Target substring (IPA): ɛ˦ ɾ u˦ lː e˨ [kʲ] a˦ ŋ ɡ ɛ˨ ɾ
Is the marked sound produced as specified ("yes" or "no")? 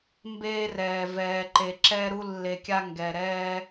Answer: yes